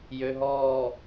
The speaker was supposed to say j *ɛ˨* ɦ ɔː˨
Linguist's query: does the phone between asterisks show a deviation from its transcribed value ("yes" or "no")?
yes